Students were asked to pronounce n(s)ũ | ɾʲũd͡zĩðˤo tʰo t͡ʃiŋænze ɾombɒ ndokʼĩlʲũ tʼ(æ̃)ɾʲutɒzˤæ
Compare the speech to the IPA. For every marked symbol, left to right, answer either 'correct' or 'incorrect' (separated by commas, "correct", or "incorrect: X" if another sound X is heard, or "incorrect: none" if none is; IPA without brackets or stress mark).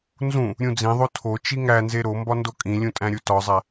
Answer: incorrect: z, correct